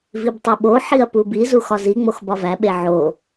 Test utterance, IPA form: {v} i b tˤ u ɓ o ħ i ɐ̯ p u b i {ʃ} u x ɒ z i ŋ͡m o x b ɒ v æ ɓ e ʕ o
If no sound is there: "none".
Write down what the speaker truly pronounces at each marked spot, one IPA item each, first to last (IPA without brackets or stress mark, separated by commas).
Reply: v, z